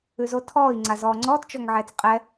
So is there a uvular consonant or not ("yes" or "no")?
yes